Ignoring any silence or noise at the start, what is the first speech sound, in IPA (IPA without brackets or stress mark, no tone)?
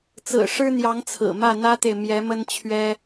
t͡s